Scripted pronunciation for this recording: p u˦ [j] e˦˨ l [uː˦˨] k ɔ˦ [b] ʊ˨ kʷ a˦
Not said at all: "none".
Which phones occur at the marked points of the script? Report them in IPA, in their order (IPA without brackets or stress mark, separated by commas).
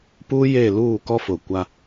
j, uː˦˨, f